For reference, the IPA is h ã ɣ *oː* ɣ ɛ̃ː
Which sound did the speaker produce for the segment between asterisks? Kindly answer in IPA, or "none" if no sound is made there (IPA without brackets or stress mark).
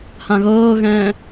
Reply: ɤː